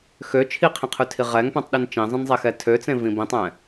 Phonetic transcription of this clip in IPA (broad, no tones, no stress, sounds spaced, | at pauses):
x ø t͡ʃʰ i qʰ ĩ qʰ ʉ tʰ i ʁ ɛ ŋ p ɛ̃ tˤ ɗ i n t͡ʃ ĩ zˤ ĩ n zˤ e x ɛ tʰ ø t͡s ẽ v ĩ b ĩ tˤ ɛ̃